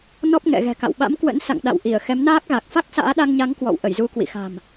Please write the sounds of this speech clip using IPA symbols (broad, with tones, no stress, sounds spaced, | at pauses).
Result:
n ɔ˦˥ p̚ ŋ ɛ̰˧˨ ɣ ɛ̤˨˩ k a̰˧˨ w ɓ a̰˧˥ m k w ə̰˧˥ n s a̰˧˨ ŋ ɗ a̰˧˨ w ʔ i˧˩ ə̯ x ɛ˨˦ m n aː˦˥ k̚ ɣ a˨˩ k̚ f a˦˥ k̚ s a̰ː˧˥ ɗ a˧ ŋ ɲ a˨˦ ŋ k w ɔ̰˧˨ w ʔ ə˧˩ j z u˧ k w ḭ˧˨ x a̤˨˩ m